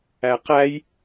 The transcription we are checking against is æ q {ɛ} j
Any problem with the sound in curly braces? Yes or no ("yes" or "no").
yes